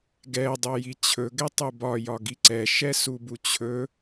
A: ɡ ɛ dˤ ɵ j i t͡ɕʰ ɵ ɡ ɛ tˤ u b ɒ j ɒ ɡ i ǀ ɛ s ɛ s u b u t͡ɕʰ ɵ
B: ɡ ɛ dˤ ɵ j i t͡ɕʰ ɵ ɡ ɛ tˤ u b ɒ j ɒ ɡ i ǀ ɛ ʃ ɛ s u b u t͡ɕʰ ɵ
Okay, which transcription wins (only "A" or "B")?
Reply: B